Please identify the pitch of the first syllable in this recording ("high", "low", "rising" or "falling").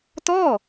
falling